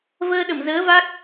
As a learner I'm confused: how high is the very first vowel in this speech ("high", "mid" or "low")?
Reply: mid